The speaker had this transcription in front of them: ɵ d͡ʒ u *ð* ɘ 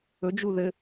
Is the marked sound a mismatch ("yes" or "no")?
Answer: no